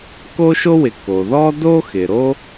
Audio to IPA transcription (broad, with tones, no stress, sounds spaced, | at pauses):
k o˥ ʃ o˥ w ɪ˩ k o˩ ð ɔ˥ d o˥ x ɪ˩ ɾ o˥